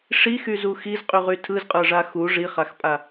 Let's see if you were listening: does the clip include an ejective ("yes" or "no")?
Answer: yes